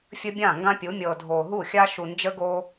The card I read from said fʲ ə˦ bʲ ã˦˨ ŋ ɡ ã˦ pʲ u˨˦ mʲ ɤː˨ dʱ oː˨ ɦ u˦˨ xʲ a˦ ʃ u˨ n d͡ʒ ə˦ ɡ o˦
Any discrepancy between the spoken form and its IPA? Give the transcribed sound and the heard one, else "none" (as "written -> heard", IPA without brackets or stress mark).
none